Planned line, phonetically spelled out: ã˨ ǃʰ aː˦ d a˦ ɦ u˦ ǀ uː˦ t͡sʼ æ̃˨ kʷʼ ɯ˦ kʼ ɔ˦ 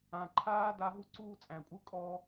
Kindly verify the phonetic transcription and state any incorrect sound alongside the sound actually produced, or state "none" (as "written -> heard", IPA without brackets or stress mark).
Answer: none